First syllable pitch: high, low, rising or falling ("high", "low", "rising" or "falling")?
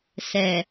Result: low